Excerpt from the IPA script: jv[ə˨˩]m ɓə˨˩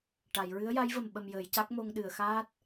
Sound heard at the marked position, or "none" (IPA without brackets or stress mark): ə˨˩